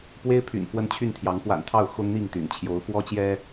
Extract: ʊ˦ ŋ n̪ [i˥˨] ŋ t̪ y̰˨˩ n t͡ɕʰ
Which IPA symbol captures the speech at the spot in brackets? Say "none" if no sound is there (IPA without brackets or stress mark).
i˥˨